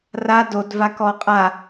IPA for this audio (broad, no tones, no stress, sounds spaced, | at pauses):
r a d o d v a k ɔ qʼ a